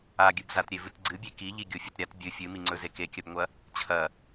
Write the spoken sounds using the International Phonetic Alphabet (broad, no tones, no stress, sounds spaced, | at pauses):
a ɡʲ ɨ b z a t ɾʲ e v ɨ t ɡ͡ǀ ɨ bʲ e k i ʎ i ɡʲ o fʲ ɐ t ɾʲ a t bʲ ɨ fʲ ɨ m i ŋ͡ǀ ɵ z e k e kʲ ɐ b ŋʷ ɐ | t͡ɕʰ ɐ